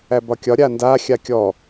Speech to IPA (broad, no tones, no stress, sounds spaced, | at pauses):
æ b ɒ kʲ ɒ ɾʲ a n d a xʲ a kʲ ɔ